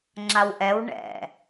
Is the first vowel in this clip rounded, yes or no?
no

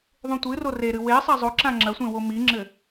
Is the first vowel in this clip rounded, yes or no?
yes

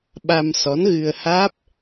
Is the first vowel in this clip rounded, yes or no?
no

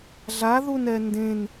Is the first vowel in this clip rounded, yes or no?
no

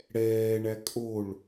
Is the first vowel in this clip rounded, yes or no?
no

